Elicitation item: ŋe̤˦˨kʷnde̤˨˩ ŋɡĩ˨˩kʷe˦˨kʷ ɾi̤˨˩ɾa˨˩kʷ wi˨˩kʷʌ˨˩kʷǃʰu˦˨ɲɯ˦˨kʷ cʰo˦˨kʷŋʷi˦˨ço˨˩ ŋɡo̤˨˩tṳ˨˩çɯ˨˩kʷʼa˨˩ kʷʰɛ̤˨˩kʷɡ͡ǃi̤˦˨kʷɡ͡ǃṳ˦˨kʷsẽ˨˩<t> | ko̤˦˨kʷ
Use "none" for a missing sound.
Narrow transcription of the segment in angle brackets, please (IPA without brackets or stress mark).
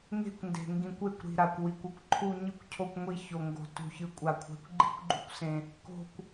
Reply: none